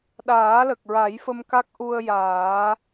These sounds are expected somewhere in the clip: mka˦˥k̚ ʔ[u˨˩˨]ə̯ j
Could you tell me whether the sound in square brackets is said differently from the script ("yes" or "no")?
yes